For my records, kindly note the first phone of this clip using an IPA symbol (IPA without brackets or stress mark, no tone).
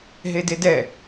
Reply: ɦ